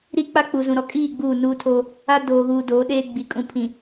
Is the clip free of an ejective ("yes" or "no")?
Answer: no